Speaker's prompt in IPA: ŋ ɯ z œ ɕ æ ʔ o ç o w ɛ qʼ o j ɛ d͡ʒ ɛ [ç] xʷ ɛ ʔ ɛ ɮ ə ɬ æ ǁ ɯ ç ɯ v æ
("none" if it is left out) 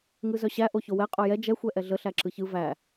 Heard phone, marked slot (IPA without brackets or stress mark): none